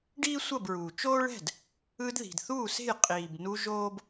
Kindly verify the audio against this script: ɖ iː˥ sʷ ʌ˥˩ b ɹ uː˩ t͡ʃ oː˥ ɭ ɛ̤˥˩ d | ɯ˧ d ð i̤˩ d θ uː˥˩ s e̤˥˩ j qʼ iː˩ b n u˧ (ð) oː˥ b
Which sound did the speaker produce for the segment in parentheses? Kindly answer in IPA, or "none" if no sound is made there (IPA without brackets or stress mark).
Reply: ʒ